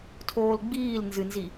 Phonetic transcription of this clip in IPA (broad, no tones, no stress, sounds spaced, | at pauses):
tʰ oː l ɡ͡b iː l n z ɨ n z i